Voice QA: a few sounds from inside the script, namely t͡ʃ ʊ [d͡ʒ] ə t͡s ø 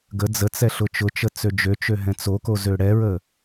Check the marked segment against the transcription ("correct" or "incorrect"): incorrect